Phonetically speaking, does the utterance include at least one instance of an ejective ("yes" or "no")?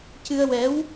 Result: no